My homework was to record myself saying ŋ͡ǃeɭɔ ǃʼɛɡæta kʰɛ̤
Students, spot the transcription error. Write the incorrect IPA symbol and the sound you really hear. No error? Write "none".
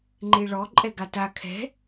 æ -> a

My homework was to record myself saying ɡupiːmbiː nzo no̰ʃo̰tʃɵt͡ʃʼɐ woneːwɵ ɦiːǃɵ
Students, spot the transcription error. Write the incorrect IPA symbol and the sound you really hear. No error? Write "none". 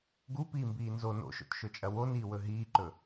eː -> iː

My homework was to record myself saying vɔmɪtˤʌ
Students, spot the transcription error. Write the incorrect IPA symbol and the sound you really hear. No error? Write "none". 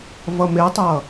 ɔ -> ʌ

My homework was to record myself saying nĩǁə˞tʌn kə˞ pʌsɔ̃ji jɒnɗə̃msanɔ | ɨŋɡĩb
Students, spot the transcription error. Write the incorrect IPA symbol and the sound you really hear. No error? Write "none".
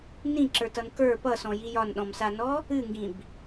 ə̃ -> ɔ̃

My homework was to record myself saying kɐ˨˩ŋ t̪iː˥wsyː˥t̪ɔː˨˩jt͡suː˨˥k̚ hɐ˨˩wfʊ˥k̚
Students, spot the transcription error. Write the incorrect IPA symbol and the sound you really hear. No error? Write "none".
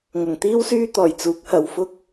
k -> ŋ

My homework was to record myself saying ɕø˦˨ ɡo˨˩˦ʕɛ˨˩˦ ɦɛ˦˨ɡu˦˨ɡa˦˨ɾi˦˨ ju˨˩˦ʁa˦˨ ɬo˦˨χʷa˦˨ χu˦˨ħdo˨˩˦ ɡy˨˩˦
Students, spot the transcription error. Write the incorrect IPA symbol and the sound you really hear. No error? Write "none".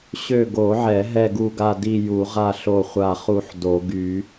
ɾ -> d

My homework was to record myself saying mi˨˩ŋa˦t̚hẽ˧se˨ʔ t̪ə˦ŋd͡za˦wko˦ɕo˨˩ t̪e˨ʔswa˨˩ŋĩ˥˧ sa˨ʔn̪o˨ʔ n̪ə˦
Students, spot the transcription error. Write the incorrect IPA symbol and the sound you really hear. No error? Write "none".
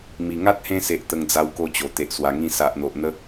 ɕ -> t͡ɕ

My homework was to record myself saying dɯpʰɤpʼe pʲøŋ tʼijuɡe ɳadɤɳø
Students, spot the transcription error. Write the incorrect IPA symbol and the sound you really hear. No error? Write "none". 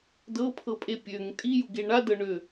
ɯ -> ɤ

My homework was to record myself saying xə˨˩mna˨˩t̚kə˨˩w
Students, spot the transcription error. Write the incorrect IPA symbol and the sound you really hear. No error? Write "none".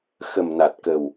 none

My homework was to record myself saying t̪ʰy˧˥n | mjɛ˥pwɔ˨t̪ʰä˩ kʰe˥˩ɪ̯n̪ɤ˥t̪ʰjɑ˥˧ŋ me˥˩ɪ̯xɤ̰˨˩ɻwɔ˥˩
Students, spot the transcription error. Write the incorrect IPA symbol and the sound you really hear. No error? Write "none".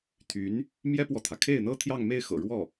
none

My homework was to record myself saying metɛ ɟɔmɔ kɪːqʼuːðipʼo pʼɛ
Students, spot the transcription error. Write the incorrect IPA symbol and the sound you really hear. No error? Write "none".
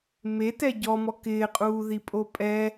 none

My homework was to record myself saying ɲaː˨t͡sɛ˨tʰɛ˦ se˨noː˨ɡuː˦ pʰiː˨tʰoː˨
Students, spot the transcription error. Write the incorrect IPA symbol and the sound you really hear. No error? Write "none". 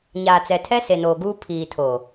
none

